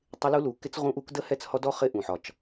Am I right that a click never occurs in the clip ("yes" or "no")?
yes